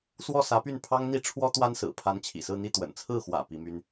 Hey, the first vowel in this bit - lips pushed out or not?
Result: yes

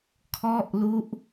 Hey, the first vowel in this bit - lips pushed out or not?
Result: yes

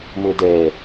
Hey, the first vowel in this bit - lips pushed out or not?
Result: yes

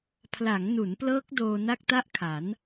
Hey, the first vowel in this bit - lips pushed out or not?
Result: no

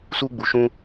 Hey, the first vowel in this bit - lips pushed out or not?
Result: yes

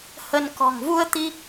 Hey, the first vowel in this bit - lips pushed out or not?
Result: no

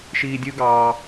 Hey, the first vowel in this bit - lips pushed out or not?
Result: no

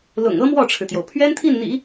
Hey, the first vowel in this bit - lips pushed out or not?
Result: yes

